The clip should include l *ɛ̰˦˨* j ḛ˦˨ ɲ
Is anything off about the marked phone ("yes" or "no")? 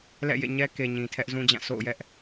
no